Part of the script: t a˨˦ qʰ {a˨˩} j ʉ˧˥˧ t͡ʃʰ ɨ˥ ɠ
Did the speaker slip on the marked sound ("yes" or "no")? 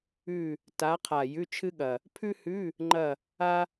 no